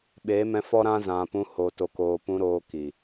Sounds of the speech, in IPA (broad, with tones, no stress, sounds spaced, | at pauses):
ɓ eː˨˦ m ɛ̃˧ f ɔ˦ ɾ ã˦ z ã˨ p ũ˧ h o˨ t o˨ k oː˨ p ũ˧ ɾ oː˧ k i˨